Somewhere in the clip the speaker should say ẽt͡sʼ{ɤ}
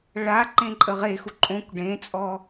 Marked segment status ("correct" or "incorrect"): incorrect